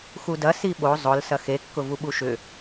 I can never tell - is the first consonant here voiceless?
yes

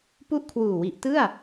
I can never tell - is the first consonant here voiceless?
yes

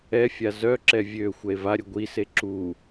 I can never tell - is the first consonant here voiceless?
yes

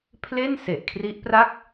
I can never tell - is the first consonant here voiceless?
yes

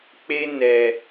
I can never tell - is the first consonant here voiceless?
yes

